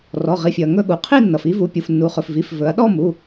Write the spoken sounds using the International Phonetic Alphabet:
rɔ˩˧˩ʁi˩˧˩fʲɵ˩ɐ̯ ŋɵ˥˧ɠu˩ qʰi˥˧nːʌ˩fi˥˧vu˩˧˩ pʲu˩˧˩fnːu˩˧χɵ˩fvi˩˧˩f vɵ˩˧ɐ̯ɗɔ˥˧mu˩˧˩

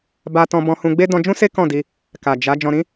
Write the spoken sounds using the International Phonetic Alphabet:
ba˧tɔ̃˧ bɔ̃˧hũ˧ɡ͡be˦ dɔ̃˧d͡ʒũ˦ se˦ kɔ̃˦˨di˧ | ka˨ d͡ʒa˨˦ d͡ʒɔ̃˧ɾĩ˦

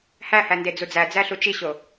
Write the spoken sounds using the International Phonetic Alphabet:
hæhænde d͡zud͡zæd͡zæɬu t͡ʃiɕo

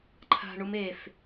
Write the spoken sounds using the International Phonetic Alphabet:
ǃʰa̤ ɳumef

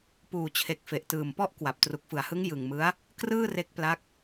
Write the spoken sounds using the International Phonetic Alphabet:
puː˨˩t͡ɕʰe˨˩k̚ fe˨˩ʔtɯː˨˩m pɔ˥˩ʔkwa˨˩p̚ tru˨˩k̚fɯ˩˦a̯hɯ˦˥ŋ jɯ˨˩ŋmɯ˦˥a̯ | krɯː˥˩re˦˥k̚pla˦˥k̚

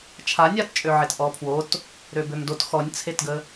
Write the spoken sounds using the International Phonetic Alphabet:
t͡ʃʰanʲatt͡ʃʼøʕet ʔɔpʰwot | ɾøbømdot xɔnʲt͡sʰetɡə

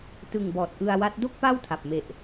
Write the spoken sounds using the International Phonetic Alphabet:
tɯ˨˩ŋ bɔː˨˩t̚ʔɯ˧a̯wa˦˥t̚ do˥˩k̚pa˥˩wtʰa˨˩p̚me˨˩ʔ

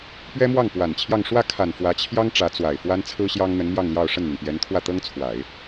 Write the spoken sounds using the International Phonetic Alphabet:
pɥɛ˥mwɑ˥˩ŋ pwa˨˩n t͡ɕʰjɑ˥˧ŋ ʂwä˥˩ kʰa˨˩n fwä˧˥t͡ɕʰjɑ˥ŋ ʈ͡ʂä˧˥t͡swa˨˩ɪ̯ fwa˥nt͡sʰɹ̩˥ ɕjɑ˥ŋn̪ə˧˥nmjɑ˥˧ŋljɑ˥˧ʊ̯ ʂə˥˩nn̪y˩npjɛ˧˥nt̪ʰwä˥˩ t̪ɤ˥ŋt͡sʰwa˨˩˦ɪ̯

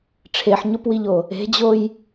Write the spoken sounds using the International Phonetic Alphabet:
ʈ͡ʂʰeħɲopwiʎo | e̤d͡ʑoj

